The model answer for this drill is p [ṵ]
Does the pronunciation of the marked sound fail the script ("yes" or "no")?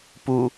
yes